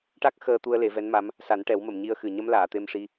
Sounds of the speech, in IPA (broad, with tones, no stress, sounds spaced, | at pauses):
ʈ a˦˥ k̚ x əː˧ t̪ u˧ ə̯ l e˨˩˦ v ɛ˧˥ n m a˧˥ m | s a˨˩˦ n ʈ ɛ˨˩˦ w m ə˨˩˨ m ɲ i˧ ə̯ x ɨ˨˩ ɲ ə˧˥ m l aː˨˩˨ t̪ e˧ m ʂ i˧